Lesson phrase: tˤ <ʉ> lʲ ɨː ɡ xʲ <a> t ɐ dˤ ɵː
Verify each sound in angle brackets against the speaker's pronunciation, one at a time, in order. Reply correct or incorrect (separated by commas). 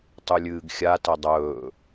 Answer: correct, correct